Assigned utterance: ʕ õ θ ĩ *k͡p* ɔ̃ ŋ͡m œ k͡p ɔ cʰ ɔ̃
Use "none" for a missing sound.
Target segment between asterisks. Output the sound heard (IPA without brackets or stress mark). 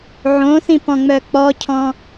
p